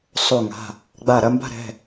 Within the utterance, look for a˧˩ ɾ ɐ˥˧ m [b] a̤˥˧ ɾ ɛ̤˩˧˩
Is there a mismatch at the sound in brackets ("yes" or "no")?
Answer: no